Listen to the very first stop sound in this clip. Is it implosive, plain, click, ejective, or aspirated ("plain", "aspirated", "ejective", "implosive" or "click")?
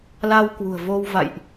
plain